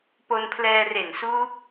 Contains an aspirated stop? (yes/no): yes